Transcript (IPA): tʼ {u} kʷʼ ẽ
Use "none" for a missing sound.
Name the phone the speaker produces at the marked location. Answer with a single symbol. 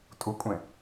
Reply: u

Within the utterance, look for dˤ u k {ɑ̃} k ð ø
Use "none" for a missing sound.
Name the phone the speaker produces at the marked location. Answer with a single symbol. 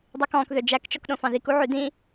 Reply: ɔ̃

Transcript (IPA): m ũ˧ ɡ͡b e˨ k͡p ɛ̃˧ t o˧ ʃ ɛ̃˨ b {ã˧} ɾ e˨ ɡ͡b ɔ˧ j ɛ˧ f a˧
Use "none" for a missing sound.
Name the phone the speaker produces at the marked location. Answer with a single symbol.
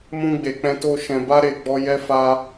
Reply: a˧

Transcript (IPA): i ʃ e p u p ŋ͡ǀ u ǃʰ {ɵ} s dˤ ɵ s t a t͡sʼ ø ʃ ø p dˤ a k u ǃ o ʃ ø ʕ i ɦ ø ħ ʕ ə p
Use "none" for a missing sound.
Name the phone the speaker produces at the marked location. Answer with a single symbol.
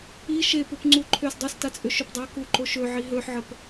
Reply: ø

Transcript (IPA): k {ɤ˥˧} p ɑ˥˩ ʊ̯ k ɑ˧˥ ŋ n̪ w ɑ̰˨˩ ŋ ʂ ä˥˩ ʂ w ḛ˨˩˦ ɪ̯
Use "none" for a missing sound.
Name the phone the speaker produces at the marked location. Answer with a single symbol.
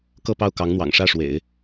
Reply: ɤ˥˧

